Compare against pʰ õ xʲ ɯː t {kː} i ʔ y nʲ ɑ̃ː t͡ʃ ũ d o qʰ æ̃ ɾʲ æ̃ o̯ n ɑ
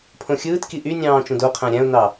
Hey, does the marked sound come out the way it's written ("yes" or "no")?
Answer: no